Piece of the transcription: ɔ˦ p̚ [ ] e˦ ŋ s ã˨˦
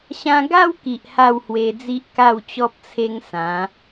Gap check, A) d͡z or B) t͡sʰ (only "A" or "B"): B